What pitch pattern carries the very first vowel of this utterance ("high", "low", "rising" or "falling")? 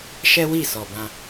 high